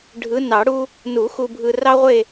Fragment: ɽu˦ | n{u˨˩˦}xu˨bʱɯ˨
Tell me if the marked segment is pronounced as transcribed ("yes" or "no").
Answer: yes